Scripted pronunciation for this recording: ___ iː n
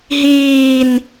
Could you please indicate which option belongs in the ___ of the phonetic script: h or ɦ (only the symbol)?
ɦ